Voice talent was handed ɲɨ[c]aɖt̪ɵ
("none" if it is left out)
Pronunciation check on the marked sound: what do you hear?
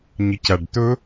c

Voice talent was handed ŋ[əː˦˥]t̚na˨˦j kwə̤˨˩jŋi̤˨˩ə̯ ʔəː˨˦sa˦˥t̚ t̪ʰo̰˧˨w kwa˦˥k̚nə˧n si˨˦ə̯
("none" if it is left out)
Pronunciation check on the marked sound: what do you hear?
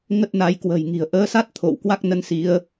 ə˦˥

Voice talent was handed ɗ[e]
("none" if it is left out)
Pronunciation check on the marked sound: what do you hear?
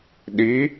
i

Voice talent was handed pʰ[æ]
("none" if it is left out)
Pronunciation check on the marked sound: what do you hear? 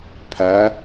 æ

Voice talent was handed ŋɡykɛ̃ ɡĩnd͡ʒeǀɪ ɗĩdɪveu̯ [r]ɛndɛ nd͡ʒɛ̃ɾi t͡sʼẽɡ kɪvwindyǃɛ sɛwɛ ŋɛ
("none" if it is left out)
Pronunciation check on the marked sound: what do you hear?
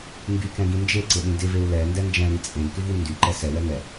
l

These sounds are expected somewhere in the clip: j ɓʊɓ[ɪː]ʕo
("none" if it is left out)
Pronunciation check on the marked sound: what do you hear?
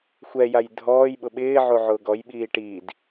ɪː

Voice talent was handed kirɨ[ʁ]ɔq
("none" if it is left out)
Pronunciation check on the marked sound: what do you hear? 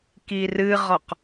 ʁ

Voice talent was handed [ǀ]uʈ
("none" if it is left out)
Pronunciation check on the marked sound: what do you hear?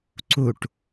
ǀ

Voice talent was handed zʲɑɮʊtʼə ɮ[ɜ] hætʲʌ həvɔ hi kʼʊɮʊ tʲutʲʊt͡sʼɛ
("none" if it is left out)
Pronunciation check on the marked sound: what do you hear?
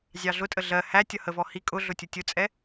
ɜ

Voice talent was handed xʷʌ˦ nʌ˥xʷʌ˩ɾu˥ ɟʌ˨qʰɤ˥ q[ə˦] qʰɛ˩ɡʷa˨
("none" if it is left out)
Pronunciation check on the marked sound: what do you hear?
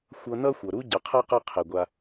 ʌ˦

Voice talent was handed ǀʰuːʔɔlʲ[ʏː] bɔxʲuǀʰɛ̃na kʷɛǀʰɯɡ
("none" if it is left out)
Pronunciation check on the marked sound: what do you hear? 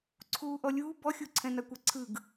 uː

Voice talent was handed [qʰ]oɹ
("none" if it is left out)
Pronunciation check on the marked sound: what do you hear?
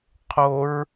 qʰ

